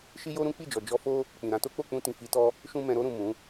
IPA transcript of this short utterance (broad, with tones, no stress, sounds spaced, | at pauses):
ʃ i˦ j o˦ ɾ ũ˦ k͡p i˦˨ d͡ʒ ɔ˨ d͡ʒ ɔ˧ f o˦ | k͡p ĩ˨ ɾ ã˧ t o˦ k͡p o˦˨ k͡p ũ˧ t ĩ˨ f i˨˦ t ɔ˦ | ʃ ũ˧ m ɛ̃˧ ɾ o˧ ɾ ũ˨ m ũ˨˦